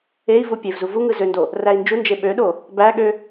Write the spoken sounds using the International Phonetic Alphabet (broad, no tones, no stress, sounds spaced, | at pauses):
e i̯ v u pʲ e v z u v u ŋ ɯ z ø n d o | r æ i̯ n d͡ʒ u n d͡ʒ e ɓ ø ɗ o | b æ ɠ ø